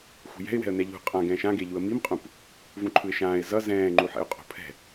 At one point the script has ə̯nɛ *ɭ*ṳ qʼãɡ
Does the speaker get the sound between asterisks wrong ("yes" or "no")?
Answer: yes